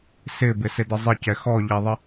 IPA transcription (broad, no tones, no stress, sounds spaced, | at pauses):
s ɪ b ɪ s ɪ d ə zˤ ɪ c ɛ x ɔ ʎ ɛ ðˤ ɪ